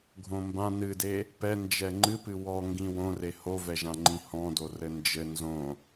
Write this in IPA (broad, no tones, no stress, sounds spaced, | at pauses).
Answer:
ɡʱ õ m b ã n ɨ d e | p ɛ n d͡ʒ ɛ ŋ͡ǃ ɨ p ɨ w ɔ ŋ ɡ ĩ w õ r e h o v ɛ ʒ ã ŋ͡ǃ ĩ h ɔ̃ d o r ɘ n d͡ʒ ɘ n z õ